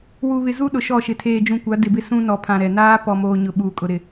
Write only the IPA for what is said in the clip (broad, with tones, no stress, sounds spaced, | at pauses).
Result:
w u˨ β ɪ˨ z u˦ ɗ ʊ˨ ʃ ɔ˦˨ ʃ ɪ˨ tʰ eː˨ d͡ʒ ũ˨ kʷ a˨˦ d ɪ˨ b ɪ˦ s ũ˦ n ɔ˨ pʰ ã˨ ɾ ɛ˨ n aː˦ p ɔ˨ m oː˨ ɲ ʊ˨ ɓ uː˨ kʼ ʊ˨ ɾ ɪ˨